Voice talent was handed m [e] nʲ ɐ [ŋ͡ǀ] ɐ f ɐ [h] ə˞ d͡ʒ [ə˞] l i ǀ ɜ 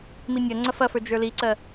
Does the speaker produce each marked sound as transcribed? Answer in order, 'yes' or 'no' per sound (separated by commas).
no, yes, no, yes